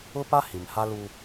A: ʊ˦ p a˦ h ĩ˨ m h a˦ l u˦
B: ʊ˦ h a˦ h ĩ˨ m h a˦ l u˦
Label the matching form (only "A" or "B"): A